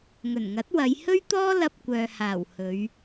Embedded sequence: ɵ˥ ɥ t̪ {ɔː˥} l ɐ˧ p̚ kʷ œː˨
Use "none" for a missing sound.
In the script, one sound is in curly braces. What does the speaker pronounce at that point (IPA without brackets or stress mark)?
ɔː˥